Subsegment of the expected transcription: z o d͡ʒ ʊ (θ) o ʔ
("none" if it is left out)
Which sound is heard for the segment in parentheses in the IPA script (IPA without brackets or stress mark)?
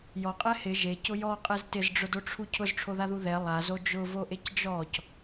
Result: v